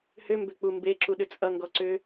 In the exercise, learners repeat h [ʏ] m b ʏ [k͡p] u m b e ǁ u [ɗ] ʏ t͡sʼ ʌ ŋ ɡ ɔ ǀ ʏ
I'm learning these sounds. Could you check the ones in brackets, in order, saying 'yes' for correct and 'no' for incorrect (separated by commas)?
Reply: yes, yes, yes